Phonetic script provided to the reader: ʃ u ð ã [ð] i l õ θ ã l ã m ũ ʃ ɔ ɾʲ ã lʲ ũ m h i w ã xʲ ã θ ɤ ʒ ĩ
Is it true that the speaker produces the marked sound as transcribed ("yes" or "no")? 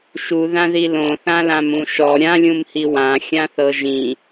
yes